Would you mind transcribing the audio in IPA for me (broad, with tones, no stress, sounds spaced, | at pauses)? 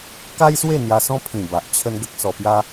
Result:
k a˦ j s w e˥˧ n̪ j a˧ s ɔ̃˦ pʰ ĩ˨˩ b a˨ ʔ t͡ɕʰ ə˦ n ɡ ə˦ k̚ s ɔ˧ p j a˦